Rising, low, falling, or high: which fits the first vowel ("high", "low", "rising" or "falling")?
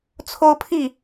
high